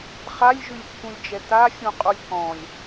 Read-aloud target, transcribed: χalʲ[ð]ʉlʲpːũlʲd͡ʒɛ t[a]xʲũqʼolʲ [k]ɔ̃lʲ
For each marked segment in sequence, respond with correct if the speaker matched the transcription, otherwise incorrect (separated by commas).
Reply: incorrect, correct, correct